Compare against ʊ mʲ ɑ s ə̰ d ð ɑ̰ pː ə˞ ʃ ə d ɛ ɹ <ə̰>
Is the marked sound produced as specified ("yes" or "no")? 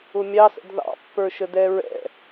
no